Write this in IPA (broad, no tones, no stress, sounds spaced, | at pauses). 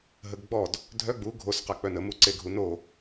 ɦ ə ɡ ɡ͡b ɔ d | dʱ œ ɡ͡b u ɡʱ o s q a k͡p œ n ə m u ǀ e ɡʱ u n o